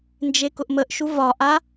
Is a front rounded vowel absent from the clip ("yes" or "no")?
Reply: yes